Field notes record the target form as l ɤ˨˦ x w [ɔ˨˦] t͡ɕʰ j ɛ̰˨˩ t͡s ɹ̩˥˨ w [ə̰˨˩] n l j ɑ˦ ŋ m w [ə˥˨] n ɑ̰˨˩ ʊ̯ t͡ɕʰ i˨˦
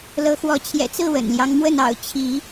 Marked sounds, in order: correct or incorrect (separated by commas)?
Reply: correct, correct, correct